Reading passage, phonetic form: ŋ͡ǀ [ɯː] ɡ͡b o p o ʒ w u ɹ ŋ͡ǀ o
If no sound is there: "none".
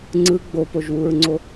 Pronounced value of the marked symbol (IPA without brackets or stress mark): ɯ